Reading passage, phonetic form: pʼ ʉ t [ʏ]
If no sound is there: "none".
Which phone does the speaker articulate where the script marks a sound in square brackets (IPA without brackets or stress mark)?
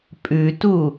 u